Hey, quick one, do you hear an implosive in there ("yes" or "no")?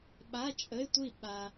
yes